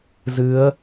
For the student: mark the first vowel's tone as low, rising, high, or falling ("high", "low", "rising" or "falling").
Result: rising